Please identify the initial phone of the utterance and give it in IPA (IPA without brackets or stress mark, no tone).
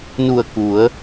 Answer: n